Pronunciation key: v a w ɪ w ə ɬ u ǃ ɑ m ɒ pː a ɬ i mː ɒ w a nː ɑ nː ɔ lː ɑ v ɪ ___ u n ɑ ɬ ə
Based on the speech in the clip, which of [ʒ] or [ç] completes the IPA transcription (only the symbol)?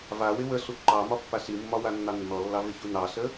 ç